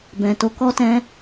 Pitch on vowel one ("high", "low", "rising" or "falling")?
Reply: low